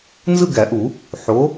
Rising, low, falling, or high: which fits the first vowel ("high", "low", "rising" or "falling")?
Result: falling